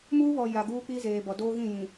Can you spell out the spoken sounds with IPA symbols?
m uː˦ β ɔ˨ j a˨ ɡ uː˦ k͡p i˦ z eː˨ b ɔ˨ d oː˦ ɣ ĩ˦˨ j ĩ˨

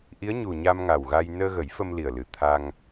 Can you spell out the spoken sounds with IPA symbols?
ʔ i˧˥ ə̯ ɲ u˨˩ ɲ a˧ m ŋ a˨˩ w ɣ a˧ j n əː˧ ɣ ə˨˩˦ j f ə˧ m l i˨˩ ə̯ l ɨ˨˩ t̪ʰ a˧ ŋ

